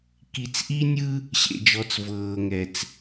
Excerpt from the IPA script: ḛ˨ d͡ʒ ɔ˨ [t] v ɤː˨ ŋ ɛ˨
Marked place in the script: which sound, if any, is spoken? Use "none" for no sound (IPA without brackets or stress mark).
t͡s